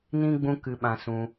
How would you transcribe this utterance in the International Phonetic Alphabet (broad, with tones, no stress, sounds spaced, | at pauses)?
n ĩ˦ ɡ͡b ũ˦ k ɨ˦ ɓ ã˦ s ũ˦